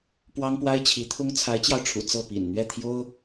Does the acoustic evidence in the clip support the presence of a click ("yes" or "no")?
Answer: no